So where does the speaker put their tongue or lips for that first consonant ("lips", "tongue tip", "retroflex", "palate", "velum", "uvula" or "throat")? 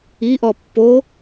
throat